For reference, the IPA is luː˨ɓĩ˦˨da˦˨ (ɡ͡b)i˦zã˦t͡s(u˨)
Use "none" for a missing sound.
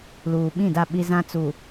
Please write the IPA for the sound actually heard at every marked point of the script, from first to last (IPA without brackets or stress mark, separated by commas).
ɓ, u˨